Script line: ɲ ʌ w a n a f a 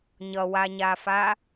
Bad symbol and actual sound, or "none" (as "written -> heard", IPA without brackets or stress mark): n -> ɲ